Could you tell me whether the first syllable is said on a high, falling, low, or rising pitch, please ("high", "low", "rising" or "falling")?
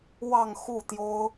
falling